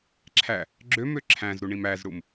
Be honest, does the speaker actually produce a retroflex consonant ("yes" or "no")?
yes